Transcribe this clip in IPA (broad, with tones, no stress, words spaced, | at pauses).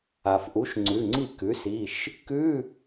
a˩fʔu˩˥ʃ ŋ͡ǀʉ˩˧˩ŋ͡ǀi˥˩ kʉ˩˥si˩˧˩ʃ | kʉ˧˥˧